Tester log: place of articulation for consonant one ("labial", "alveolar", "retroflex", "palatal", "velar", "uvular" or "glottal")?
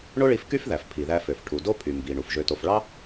retroflex